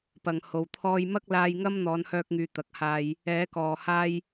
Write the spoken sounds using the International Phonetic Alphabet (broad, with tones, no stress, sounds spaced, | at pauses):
p ɐ˨˩ ŋ h o˨˩ w t̪ʰ ɔː˧ j m ɐ˥ k̚ l aː˧ j ŋ ɐ˥ m n̪ ɔː˨˧ n h œː˧ k̚ ŋ yː˨ t̪ ɐ˨ k̚ h aː˧ j | ɛː˨˥ k ɔː˨ h aː˥ j